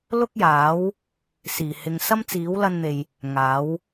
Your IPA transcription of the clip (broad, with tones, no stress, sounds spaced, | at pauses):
l ʊ˥ k̚ j aː˨˥ w | s iː˨˩ h ɪ˨ ŋ s ɐ˥ m t͡s iː˨˥ w l ɐ˧ n n̪ e˨ j | ŋ aː˨˥ w